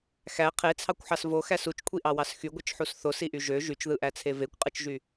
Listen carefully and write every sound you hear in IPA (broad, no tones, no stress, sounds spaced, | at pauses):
x æ qʰ e t͡sʰ ɑ kʷ ħ ɑ s v o x æ s u t͡ʃ kʷʰ i ʔ ɑ w ɑ s x y ɡʷ ɯ t͡ʃ ħ u s θ o s i ʔ y ʒ ø ʒ y t͡ʃ ð ɯ ʔ æ t͡sʰ e v e kʷ qʼ ɯ t͡ʃ ʒ y